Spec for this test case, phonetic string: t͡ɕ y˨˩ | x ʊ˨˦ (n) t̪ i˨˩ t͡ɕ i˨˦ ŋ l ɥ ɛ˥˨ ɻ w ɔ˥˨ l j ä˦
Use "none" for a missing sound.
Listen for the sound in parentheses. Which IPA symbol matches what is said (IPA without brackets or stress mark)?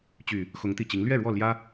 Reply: ŋ